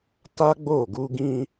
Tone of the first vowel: high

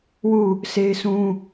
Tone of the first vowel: falling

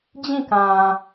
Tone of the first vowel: falling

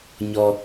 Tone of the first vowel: low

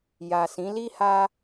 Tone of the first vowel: low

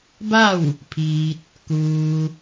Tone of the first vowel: falling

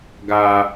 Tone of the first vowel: low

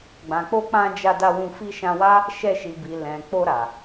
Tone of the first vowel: low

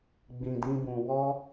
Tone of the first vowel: low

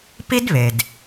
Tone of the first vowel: high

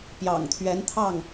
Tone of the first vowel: low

